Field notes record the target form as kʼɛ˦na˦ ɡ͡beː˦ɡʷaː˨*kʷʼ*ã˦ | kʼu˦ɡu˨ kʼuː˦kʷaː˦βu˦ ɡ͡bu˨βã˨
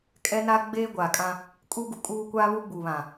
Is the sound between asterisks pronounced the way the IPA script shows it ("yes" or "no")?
no